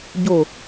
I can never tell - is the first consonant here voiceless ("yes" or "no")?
no